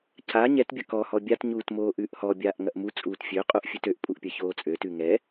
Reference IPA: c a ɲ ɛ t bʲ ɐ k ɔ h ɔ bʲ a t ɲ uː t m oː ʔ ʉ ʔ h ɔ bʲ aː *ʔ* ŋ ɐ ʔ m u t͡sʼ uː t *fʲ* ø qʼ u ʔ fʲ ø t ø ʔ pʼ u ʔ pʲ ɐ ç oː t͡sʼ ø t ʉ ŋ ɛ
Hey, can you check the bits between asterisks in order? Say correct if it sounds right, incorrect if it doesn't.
correct, correct

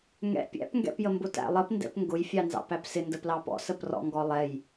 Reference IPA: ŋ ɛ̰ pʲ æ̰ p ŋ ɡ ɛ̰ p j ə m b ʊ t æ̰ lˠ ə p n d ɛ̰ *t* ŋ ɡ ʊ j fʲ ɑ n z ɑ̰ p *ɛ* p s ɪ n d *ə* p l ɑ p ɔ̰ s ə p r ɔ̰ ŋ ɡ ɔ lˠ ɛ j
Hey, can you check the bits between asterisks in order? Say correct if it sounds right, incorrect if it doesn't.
incorrect: p, incorrect: æ, correct

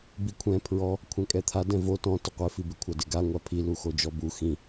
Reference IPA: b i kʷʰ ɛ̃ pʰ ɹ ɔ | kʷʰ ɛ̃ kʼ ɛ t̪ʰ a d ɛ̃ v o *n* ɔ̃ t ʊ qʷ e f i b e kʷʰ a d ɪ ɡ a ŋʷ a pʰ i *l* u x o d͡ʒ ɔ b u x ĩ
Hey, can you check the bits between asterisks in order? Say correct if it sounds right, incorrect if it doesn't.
incorrect: t, correct

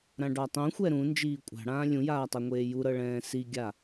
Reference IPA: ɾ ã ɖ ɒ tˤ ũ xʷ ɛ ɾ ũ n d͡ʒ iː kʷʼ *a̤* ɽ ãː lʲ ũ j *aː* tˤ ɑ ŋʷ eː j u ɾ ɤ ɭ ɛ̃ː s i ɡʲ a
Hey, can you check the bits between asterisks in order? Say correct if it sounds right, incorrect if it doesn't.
correct, correct

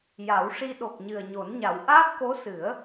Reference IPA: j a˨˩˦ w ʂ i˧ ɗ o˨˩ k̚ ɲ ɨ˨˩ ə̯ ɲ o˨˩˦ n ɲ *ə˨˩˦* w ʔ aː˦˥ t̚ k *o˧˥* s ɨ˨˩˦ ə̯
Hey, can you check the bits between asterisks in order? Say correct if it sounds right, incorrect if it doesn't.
incorrect: a˨˩˦, correct

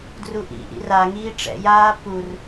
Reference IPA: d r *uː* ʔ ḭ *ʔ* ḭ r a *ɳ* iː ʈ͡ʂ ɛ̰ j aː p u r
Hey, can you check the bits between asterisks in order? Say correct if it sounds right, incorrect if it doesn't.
incorrect: u, correct, incorrect: ŋ

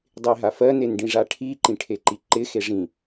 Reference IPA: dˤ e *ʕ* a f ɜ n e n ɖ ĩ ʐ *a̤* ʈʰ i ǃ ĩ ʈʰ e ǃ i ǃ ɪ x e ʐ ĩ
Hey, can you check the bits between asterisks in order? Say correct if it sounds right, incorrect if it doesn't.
incorrect: ɦ, incorrect: a

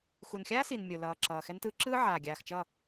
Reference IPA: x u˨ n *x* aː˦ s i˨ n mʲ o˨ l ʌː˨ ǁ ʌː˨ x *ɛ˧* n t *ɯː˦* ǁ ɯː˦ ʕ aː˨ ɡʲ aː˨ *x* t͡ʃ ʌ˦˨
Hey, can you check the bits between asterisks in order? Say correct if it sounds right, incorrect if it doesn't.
incorrect: xʲ, correct, incorrect: ɯː˧, correct

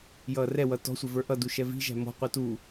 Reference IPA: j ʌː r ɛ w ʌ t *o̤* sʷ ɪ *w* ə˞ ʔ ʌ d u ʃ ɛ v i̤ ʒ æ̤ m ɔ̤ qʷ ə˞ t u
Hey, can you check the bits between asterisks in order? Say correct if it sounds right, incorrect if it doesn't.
incorrect: ɔ̤, incorrect: v

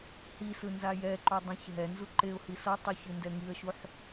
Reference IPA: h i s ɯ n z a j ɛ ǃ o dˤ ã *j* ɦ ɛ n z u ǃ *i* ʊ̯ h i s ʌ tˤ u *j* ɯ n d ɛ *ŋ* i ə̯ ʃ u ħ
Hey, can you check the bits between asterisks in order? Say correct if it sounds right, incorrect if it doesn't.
incorrect: ç, incorrect: e, incorrect: ç, correct

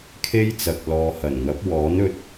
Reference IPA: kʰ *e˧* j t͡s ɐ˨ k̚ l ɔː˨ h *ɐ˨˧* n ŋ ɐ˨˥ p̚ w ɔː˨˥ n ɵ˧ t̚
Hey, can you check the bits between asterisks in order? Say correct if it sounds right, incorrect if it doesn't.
incorrect: e˥, incorrect: ɐ˨˩

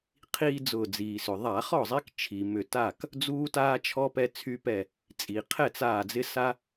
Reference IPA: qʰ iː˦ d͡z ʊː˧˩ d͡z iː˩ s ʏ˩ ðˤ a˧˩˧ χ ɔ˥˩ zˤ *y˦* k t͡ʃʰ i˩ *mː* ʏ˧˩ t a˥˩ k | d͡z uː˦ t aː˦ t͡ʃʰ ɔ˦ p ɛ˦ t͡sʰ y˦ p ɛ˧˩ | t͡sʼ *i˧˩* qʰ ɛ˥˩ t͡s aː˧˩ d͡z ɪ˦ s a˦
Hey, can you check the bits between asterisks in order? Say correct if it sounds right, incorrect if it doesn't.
incorrect: i˦, incorrect: m, incorrect: i˩

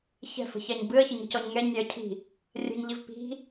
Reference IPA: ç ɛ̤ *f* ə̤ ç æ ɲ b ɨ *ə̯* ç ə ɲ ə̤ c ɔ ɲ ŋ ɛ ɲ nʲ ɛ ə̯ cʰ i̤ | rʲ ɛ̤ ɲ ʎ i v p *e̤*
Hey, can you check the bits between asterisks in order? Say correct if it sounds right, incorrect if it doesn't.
correct, correct, incorrect: i̤

